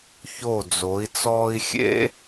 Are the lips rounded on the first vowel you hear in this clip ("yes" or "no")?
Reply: yes